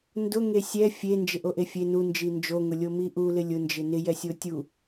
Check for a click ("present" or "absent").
absent